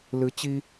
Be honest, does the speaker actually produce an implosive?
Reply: no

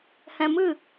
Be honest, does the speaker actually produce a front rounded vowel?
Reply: no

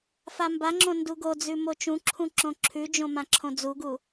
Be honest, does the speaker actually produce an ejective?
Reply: no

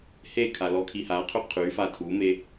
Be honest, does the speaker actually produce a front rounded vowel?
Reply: yes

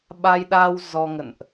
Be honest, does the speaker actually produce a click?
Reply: no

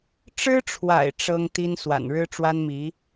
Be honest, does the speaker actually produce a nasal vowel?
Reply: no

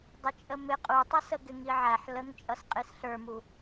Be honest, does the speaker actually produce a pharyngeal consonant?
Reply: yes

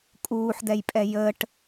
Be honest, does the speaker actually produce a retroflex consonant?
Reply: yes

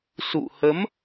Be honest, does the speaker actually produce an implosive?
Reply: no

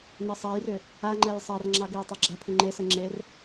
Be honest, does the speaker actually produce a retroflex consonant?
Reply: no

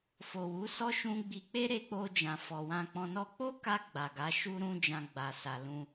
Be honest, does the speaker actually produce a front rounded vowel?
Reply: no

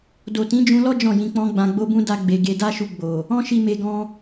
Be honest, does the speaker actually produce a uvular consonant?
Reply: no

